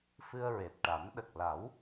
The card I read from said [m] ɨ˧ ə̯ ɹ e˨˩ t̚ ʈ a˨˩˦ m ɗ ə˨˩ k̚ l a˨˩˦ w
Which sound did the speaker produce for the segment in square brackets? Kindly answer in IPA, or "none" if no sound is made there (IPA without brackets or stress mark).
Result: f